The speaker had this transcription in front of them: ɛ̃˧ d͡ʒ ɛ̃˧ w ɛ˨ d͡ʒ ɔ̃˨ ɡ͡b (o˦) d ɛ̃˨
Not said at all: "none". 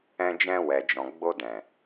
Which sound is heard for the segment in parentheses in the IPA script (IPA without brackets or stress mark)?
o˧